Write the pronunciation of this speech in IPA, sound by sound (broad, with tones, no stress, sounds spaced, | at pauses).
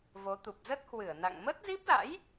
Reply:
v o˨˦ t̪ u˨˩ p̚ z ə˦˥ t̚ h w ɨ˧˩ ə̯ n a̰˧˨ ŋ m ə˦˥ t̚ z i˦˥ p̚ l a̰˧˥ j